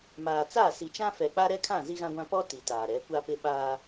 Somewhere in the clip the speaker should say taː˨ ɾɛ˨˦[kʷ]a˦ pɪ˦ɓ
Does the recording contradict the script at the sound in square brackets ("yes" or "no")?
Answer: no